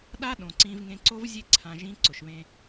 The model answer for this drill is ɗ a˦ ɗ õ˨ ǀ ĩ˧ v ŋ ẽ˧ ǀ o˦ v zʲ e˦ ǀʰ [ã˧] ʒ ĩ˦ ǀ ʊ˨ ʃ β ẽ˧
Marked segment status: correct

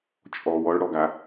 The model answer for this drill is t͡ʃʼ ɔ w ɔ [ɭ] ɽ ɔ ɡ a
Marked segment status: correct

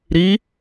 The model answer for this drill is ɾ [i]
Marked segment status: correct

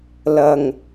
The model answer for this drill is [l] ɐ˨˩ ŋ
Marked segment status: correct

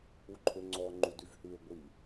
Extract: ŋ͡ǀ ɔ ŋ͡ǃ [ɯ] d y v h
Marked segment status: incorrect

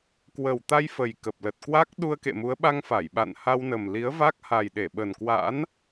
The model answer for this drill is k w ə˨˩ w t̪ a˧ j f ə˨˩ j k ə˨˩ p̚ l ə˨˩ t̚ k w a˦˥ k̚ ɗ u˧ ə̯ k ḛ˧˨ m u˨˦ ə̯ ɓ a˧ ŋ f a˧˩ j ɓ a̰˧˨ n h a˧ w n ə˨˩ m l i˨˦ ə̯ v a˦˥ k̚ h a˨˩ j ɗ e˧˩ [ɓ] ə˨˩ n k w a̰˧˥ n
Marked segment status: correct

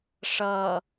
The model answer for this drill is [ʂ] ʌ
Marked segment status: correct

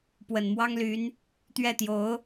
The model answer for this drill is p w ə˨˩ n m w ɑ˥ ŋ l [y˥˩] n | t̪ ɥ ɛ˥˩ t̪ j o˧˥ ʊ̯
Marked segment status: incorrect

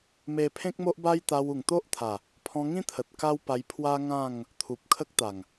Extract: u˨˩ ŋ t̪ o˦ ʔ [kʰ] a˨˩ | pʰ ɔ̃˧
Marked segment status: incorrect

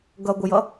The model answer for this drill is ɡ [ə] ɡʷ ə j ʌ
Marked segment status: incorrect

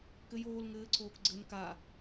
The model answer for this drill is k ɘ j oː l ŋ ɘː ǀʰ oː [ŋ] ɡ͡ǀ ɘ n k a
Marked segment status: incorrect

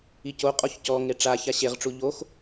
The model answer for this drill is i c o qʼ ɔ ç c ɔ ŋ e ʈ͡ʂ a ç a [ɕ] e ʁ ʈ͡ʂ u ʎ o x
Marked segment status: correct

